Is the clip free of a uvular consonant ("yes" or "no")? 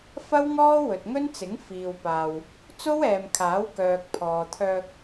yes